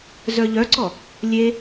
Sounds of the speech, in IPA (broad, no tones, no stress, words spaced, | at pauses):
zœʎœǀɔ | lʲe